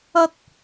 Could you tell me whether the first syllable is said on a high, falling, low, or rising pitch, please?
high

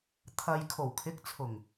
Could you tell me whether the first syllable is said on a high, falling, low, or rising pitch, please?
low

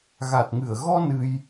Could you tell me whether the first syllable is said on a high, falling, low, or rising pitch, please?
low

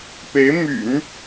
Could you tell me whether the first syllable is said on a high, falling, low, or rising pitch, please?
rising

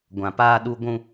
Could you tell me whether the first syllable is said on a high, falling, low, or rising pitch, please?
low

